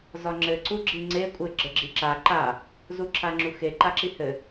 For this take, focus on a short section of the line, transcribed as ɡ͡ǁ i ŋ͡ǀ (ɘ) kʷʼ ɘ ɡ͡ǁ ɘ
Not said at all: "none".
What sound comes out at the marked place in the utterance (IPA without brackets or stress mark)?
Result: e